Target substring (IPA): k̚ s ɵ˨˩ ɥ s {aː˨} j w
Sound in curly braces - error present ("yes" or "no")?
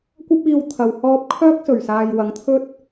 no